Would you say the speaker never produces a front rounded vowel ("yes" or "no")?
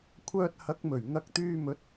no